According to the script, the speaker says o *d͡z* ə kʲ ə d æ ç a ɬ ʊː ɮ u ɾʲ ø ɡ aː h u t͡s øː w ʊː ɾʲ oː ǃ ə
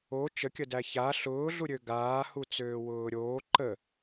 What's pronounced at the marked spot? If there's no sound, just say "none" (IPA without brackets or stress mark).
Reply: t͡ʃ